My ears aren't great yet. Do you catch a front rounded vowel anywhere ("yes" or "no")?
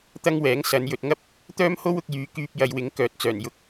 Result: yes